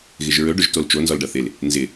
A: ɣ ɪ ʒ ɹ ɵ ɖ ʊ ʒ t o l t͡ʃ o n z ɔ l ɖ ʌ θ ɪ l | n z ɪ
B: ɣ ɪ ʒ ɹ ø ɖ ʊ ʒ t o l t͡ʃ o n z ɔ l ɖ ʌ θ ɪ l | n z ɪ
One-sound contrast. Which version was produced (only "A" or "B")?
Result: A